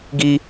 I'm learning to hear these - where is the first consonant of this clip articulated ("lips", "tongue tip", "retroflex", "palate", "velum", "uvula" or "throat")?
velum